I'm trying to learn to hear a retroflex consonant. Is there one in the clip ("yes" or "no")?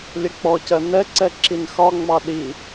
no